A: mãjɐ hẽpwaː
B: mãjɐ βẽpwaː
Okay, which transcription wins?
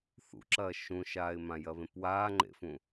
B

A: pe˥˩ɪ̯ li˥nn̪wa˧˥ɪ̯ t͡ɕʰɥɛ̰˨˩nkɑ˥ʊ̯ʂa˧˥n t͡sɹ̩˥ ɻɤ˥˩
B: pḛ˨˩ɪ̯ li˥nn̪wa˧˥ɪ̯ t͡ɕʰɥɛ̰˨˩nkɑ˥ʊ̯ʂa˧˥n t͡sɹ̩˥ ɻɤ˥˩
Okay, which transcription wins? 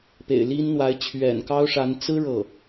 B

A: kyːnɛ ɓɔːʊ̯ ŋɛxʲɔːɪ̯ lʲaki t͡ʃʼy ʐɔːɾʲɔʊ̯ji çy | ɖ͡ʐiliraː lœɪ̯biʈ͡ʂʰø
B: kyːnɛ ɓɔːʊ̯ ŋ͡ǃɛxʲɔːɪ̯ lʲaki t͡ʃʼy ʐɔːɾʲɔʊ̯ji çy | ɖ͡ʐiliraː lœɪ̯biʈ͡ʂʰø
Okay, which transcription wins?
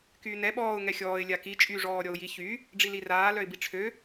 A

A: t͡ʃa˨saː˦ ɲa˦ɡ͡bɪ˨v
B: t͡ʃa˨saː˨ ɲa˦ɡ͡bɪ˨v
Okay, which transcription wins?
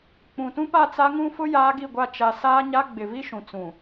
A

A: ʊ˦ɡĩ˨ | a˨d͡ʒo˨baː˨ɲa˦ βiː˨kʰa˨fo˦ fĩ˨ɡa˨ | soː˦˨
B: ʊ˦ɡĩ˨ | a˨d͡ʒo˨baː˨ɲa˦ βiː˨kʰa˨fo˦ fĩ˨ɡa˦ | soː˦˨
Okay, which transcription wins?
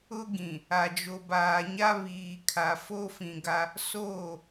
B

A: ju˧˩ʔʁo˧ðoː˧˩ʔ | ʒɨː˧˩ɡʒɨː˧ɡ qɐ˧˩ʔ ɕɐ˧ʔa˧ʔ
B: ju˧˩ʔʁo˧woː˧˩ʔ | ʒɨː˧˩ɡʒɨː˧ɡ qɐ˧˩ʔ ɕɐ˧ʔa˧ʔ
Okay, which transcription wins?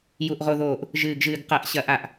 A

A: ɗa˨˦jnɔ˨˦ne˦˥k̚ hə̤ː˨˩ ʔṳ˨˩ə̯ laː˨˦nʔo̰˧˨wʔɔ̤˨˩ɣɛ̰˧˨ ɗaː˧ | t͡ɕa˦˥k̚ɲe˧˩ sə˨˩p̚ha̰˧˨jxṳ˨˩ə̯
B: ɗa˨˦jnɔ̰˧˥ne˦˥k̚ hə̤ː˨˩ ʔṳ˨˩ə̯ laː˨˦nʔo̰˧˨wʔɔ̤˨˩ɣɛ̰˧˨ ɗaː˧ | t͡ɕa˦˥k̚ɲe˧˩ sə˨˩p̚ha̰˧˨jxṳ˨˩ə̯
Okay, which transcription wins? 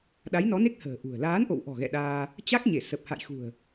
A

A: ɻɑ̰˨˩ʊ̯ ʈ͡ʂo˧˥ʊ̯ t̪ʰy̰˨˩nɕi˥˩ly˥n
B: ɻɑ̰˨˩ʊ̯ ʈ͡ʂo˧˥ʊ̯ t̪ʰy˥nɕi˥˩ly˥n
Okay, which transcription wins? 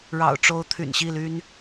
A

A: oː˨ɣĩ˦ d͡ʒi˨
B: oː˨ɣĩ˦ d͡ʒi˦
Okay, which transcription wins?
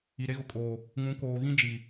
A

